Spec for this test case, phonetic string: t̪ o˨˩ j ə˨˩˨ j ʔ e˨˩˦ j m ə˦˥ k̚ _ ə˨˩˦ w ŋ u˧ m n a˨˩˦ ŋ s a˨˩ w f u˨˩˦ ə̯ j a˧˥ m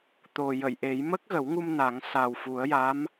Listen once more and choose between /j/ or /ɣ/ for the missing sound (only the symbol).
ɣ